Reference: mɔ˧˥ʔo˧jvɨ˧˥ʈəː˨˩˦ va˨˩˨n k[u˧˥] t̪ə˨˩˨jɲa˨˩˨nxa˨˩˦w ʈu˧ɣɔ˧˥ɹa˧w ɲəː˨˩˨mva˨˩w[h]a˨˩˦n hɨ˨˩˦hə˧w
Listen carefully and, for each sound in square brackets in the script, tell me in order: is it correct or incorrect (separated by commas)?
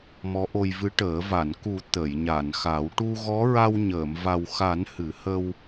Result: incorrect, incorrect